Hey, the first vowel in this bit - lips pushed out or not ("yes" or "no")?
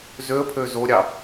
yes